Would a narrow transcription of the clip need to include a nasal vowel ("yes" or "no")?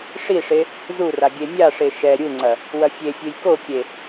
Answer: no